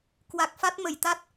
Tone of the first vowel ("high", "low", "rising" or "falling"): low